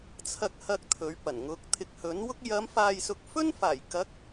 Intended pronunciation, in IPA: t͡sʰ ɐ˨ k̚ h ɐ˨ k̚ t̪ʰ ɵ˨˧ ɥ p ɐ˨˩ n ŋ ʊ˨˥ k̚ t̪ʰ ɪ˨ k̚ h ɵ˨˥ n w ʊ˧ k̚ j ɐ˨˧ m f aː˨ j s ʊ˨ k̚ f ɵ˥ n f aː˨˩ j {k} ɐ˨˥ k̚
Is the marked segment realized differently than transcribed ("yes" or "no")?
no